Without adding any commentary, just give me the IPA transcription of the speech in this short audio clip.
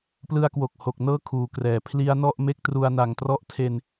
p l ɯ˧ a̯ k w o˨˩ k̚ h o˨˩ k̚ n ɤː˦˥ kʰ uː˩˦ k r ɛː˩˦ pʰ l i˦˥ a̯ n ɔ˥˩ ʔ m e˦˥ k̚ t r u˧ a̯ n a˨˩ ŋ t r ɔ˦˥ ʔ tʰ e˧ n

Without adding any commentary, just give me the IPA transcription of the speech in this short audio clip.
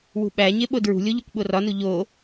w ṳ ɓ æ ɲ e ɓ o d ɹ ṳ lʲ o ʎ u kʷ ɓ o r ɒ n u ʎ o

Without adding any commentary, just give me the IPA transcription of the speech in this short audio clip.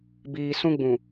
b iː˨ s ũ˦ ɡ͡b ũ˨

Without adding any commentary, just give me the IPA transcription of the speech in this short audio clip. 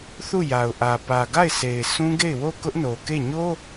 θ u˦˨ j a˨ ʊ̯ ʔ ä˨ p ä˨ ɡ a˦˨ ɪ̯ sʰ e˨ ɪ̯ sʰ ũ˦ ɡ e˦˨ ɪ̯ w o˦˨ k ʊ˦ ʔ n o˨ k e˦˨ ɲ o˦

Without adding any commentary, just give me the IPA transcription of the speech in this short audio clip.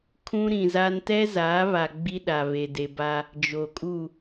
kʰ ũ˦ ɾ ĩ˨ z a˦ n t ɛ˦ z aː˨˦ β a˨ ɡ͡b i˦ ɗ a˨ β e˨ d e˨ b a˦ | d͡ʒ o˨ kʼ u˦˨

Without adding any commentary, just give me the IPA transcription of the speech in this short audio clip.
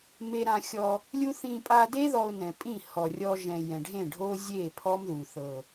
m e˧ ɾ ã˧ xʲ ɔ˧ | lʲ u˦ θ ĩ˧ pʼ a˧ d e˦ ð ɔ˧ ʊ̯ n ɛ̃˨ pʼ ĩ˦˨ h ɔ˨ rʲ ɔ˧ ʒ ɛ̃˨ j ɛ̃˨ ɖʱ ẽ˦˨ ɖʱ o˦ zʲ e˦˨ pʰ ɔ˦ m ð u˨ θ ɤ˨

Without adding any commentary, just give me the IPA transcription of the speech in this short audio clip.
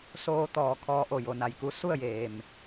s oː˧ t̪ ɔː˧˩ kʰ ɔː˧ ʔ o˧˩ j o˩˧ n a˩ j k u˧ s u˥˨ ə̯ j eː˩ m

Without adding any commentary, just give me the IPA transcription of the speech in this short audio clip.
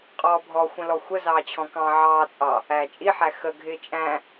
qʼ ɔː bʱ ɔ xʷ ə̃ l ɔ xʷ ə z ɑː t͡ɕʰ ɔ̃ k ɑ̃ ʕ ɑː t͡sʼ ɑ | æː t͡ʃʼ i ħ æ x ə ɡʱ ɪː t͡ʃʼ æ̃

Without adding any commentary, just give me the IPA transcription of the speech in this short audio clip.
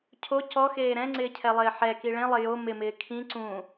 cʰ o c ɔ x eː ɾ ɛ̃ ŋ͡ǀ ɪː cʰ ɛ lˠ ɪː ħ ɛ k i ɭ ẽ lˠ ɪ j o m ɪ m ɪː kʰ ĩ ǀ ũ

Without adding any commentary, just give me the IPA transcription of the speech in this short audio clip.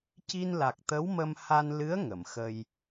c i˧ n l a˨˩ k̚ t̪ ə˧˥ w m ə˧ m h a˧ n l ɨ˧˥ ə̯ ŋ ə˨˩˨ m x ə˧ j

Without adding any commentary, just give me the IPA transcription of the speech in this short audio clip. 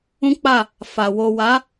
ũ˦ k͡p a˦˨ | f a˨ w o˨ w a˨˦

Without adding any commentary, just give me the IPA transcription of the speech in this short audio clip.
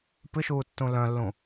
p ɨ ʃ uː tː ũ l œ̃ lː ũ

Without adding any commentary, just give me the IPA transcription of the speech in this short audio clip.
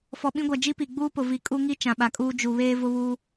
f ɔ˨ ɓ ĩ˦ ɡʷ a˨ d͡ʒ i˦ p i˨ ɡ͡b uː˦ p ʊ˨ v i˨ kʼ u˦ ŋ i˦ t͡ʃ ã˨ ɓ a˨ kʼ uː˦ d͡ʒ u˨ β eː˦ v ʊ˦ β uː˦

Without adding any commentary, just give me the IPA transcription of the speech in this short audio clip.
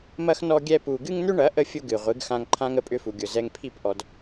m ɐ˦ x n ɔ˦ ɡʲ ɛ˦ p u˧ ɡ ɨ˦ ŋ n̪ ʏ˦ ɳ ɐ˨˦ ʔ ə˦ fʲ ʊ˦ ɡ ɨ˨ ʁʷ ɨ˨˦ ɡ x ã˧ ŋ ǃʰ ã˦ ŋ ə˧ pʼ ʏ˧ f u˨ ɡʲ ʊ˨ z ɛ˧ ŋ pʰ i˦˨ p ʔ ɔ˧ d

